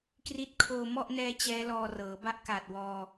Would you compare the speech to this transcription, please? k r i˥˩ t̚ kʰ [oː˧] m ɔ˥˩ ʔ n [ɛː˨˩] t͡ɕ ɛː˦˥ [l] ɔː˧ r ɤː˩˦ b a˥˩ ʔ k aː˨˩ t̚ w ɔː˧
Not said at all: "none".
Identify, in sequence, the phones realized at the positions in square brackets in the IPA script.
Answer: oː˧, ɛː˦˥, l

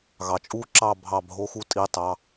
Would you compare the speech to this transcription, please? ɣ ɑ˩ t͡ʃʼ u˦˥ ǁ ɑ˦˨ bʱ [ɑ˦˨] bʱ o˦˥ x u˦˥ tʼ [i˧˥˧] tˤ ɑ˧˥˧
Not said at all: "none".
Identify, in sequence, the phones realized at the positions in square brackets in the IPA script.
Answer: ɑ˦˨, i˧˥˧

